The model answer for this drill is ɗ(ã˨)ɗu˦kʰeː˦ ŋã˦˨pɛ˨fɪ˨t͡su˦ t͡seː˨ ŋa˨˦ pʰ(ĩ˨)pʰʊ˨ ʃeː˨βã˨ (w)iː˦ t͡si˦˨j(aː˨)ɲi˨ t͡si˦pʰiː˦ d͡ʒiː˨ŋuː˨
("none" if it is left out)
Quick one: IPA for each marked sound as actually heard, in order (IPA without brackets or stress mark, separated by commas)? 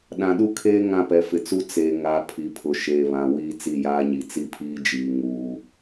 ã˨, i˨, w, aː˦